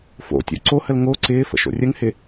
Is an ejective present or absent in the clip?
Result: absent